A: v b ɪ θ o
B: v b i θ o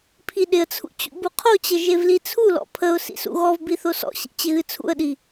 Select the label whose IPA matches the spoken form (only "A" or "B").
B